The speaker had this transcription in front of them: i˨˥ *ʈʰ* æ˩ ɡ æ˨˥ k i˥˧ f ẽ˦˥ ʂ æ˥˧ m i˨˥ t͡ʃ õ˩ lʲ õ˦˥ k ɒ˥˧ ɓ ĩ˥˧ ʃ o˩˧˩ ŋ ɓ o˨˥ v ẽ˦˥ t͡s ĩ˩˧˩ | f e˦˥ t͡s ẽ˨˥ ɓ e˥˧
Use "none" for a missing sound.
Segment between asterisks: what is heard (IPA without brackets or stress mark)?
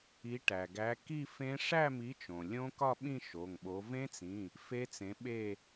ʈ